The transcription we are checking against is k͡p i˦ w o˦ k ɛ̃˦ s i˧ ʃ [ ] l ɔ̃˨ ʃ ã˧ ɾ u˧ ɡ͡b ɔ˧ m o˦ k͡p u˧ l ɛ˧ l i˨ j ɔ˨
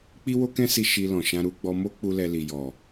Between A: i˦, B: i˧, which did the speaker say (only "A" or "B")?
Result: B